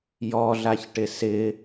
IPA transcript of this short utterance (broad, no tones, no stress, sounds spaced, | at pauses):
j ɔ ɮ a ç ʈ ɪ s ɪ